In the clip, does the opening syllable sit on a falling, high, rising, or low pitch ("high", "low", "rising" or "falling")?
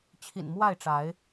low